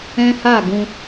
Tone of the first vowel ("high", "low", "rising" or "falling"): high